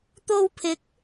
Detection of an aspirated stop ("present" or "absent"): present